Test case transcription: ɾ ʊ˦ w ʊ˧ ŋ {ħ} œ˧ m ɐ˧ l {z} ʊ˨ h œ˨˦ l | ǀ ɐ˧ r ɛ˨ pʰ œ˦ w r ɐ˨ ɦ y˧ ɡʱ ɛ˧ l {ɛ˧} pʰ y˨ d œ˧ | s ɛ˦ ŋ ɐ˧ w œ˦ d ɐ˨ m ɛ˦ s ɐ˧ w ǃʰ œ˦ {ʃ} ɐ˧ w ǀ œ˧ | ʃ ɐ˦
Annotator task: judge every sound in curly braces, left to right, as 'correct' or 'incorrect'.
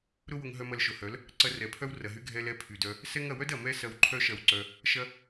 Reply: incorrect, incorrect, correct, correct

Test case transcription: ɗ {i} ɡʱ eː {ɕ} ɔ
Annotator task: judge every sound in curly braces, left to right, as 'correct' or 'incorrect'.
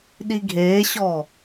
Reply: correct, correct

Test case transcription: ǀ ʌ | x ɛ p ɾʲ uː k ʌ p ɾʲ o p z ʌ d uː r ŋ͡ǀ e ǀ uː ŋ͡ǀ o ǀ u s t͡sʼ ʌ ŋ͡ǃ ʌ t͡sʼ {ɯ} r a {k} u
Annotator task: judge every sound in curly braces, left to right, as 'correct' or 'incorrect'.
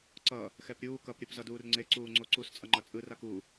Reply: correct, correct

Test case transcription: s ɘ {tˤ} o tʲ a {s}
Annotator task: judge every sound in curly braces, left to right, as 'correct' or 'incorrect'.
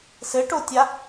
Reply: incorrect, incorrect

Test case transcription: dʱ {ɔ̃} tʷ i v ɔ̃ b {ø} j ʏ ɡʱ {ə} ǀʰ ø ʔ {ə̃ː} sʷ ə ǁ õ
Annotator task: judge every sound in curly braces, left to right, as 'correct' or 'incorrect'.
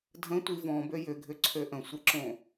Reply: incorrect, correct, incorrect, incorrect

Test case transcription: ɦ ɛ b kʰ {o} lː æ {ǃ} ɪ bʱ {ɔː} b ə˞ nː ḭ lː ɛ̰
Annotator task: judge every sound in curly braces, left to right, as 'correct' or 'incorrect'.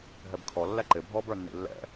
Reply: incorrect, correct, correct

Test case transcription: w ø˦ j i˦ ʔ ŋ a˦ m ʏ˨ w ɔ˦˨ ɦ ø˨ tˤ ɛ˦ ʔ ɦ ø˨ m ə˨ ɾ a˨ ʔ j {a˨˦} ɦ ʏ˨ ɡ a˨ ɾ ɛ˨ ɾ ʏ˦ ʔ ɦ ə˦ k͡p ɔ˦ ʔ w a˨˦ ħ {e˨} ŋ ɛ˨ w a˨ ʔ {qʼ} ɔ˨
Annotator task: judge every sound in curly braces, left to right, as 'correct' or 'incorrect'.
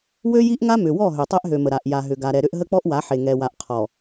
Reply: incorrect, correct, incorrect

